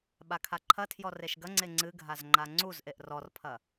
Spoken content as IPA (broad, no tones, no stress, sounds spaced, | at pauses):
ɓ a kʰ a ǃʰ ɐ tʰ j ɔ r e ʃ ɡ ɐ ŋ͡ǀ e ŋ͡ǀ ɨ ɡʱ a z ŋ͡ǃ a ŋ͡ǀ u z ʔ e ʔ r ɔ r pʰ ɐ